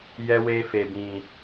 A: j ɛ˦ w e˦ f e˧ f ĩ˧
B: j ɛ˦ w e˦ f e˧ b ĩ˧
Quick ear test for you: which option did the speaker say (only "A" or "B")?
B